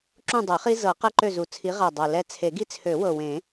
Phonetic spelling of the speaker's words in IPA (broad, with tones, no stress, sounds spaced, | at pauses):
ǁ ũ˦˨ dˤ ɛ˨˩˦ χ i˦ z ɤ˨˩˦ q ɛ˦ ǃ ø˦˨ z u˨˩ t͡sʰ i˨˦ ʁ a˨˩ dˤ a˨˩ l ɛ˦˨ t͡sʰ e˨˩˦ ɡ i˦ t͡sʰ ø˨˩˦ w ɤ˨˩ w ẽ˨˩˦